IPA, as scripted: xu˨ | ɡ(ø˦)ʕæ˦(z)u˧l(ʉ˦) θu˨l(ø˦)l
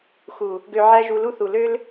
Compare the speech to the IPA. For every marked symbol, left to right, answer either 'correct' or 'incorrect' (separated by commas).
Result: incorrect, incorrect, incorrect, correct